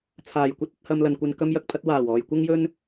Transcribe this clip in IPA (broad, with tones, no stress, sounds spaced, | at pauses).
t͡sʰ aː˨˩ j kʷ ɐ˥ t̚ ɐ˧ t̚ h ɐ˧ m l ɐ˨ n kʷ ɐ˧ n k ɐ˧ m j ɐ˨ k̚ pʰ ɐ˧ t̚ w aː˨˩ w ɔː˨ j kʷ ɐ˥ ŋ j ɵ˥ n